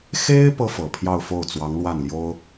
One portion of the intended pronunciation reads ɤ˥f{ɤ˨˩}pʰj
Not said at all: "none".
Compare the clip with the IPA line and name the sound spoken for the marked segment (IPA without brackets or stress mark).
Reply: ɤ˨˩